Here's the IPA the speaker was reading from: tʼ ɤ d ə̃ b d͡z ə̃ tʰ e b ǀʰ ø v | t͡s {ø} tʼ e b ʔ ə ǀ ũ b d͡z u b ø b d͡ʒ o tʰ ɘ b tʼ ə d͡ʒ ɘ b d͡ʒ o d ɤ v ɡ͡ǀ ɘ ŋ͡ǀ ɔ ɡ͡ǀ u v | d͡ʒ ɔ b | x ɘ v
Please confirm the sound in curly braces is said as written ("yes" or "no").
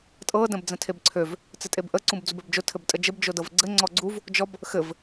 no